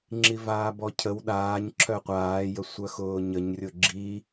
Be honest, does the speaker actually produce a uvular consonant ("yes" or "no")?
yes